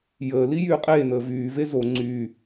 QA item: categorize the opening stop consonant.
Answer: ejective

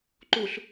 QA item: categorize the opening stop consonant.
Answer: click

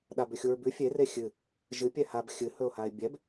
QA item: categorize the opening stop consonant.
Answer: implosive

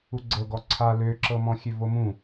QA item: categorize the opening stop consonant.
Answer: click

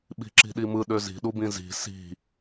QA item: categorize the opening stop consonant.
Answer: implosive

